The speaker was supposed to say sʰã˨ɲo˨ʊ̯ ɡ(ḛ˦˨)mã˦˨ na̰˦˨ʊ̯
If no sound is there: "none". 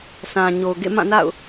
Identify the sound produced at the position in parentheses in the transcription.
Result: ḛ˦˨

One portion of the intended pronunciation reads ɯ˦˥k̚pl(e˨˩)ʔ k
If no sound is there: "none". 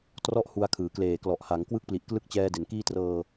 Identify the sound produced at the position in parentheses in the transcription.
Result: i˨˩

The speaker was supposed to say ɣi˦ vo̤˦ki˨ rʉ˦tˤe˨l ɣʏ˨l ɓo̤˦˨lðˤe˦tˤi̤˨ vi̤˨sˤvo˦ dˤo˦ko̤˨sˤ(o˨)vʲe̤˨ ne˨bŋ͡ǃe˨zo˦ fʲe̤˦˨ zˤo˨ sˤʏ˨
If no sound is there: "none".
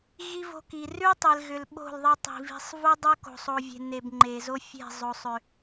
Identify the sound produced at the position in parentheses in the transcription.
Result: o˨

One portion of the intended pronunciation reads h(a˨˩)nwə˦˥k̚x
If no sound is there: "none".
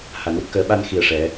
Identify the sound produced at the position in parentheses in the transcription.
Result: a˨˩˦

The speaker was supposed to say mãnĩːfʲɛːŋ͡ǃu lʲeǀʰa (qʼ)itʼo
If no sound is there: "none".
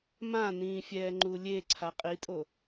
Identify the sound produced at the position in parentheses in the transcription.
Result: qʼ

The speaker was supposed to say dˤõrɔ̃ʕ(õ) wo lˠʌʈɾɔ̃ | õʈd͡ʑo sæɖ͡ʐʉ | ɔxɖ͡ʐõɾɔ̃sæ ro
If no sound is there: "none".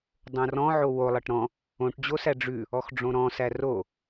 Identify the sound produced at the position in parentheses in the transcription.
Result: o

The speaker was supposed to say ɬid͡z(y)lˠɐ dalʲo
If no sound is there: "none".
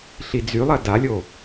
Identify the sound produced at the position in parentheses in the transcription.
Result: y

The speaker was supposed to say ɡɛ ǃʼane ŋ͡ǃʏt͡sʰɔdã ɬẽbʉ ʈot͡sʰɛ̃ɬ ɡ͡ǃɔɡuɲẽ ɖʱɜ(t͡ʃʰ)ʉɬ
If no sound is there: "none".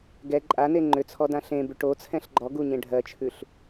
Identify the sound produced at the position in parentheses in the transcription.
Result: t͡ʃʰ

